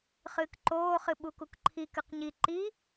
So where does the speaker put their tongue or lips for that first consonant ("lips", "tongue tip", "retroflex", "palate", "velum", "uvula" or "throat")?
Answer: uvula